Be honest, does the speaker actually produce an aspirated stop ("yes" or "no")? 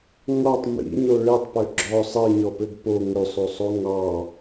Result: no